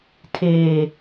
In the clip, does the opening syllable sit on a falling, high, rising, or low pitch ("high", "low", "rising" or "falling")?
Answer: low